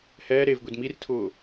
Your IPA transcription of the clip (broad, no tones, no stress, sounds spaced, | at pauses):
h ɛː ɾ e v ɡʷ i d m i r tʰ ʊː